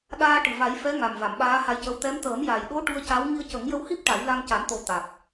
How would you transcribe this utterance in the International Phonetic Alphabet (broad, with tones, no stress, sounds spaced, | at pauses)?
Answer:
ɗ aː˧ ʈ ɨ˨˩ v a˨˩˦ j f ɛ˧˥ ŋ a˨˩ m v a˨˩˨ m ɓ aː˧˥ h a˧ j c ə˧ w t̪ ɛ˧˥ m t̪ əː˨˩˦ m j a˨˩ j ɗ o˧˥ ʈ u˧ ə̯ c a˧˥ w ŋ i˧ ə̯ c ə˨˩˦ ŋ j ə˧ w h i˦˥ p̚ ʈ a˨˩˦ j l a˧ ŋ c a˨˩˦ n t̪ o˨˩˦ t̪ a˨˩ k̚